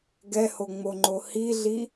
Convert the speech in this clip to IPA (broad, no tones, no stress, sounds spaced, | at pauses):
ɡ ɛ h o ŋ͡m o ŋ͡ǃ o h i ɮ i